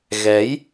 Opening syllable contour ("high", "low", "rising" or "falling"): rising